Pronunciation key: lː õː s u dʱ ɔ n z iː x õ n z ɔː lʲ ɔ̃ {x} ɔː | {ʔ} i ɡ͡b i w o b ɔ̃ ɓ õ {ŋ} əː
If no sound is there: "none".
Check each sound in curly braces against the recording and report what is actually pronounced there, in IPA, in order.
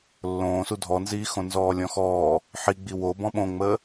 x, ħ, ŋ͡m

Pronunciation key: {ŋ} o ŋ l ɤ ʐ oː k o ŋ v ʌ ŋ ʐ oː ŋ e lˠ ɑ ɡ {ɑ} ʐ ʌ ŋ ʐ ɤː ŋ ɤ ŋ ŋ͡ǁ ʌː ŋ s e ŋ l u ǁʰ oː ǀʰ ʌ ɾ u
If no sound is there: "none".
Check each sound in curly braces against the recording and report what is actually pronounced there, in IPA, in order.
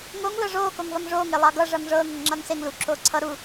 ŋ, ʌ

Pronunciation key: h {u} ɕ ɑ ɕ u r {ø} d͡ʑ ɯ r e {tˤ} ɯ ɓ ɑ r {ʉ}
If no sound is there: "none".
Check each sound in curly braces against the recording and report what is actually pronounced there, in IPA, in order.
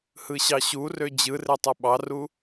ɯ, ø, tˤ, u

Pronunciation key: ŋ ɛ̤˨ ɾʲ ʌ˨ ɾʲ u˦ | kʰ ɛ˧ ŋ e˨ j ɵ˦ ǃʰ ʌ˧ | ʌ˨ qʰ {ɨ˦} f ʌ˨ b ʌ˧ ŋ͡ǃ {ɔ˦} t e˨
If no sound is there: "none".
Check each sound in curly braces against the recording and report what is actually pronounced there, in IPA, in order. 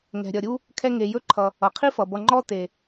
i˦, ɔ˦

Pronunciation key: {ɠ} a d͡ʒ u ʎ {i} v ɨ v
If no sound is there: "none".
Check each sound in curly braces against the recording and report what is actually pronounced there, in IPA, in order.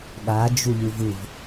ɠ, ɨ

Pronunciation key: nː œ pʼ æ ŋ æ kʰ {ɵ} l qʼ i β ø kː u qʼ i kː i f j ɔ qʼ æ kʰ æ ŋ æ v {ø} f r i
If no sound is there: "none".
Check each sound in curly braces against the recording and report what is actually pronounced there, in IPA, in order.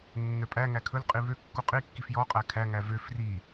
ɵ, ø

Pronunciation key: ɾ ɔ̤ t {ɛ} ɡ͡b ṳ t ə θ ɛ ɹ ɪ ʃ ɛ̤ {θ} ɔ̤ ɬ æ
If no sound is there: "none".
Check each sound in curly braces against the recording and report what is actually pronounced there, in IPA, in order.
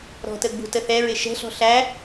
ə, ɬ

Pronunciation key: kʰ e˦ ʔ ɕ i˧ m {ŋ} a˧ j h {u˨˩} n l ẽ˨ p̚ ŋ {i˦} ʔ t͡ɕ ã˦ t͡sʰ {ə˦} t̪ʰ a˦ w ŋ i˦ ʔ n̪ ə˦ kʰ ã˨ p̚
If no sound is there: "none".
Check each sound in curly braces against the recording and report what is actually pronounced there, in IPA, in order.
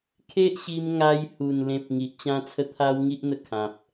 ŋ, u˨˩, i˨, ə˦

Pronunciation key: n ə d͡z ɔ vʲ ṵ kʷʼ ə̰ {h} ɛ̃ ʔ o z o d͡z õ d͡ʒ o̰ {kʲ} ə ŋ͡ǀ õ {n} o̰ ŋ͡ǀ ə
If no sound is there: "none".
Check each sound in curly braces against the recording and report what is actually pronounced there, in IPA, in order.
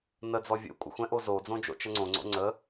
xʷ, t͡ʃ, ŋ͡ǀ

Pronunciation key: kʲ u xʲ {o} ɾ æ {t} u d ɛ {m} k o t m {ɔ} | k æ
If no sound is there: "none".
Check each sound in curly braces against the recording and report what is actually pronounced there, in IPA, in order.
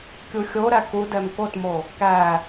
o, k, m, o

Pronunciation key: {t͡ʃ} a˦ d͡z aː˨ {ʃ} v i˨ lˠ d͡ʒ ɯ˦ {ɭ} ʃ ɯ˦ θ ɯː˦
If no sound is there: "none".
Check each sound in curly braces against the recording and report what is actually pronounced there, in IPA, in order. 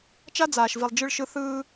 t͡ʃ, ʃ, ɭ

